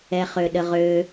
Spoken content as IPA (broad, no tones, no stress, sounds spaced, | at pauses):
ɛ χ ø ɗ ə ʁ ø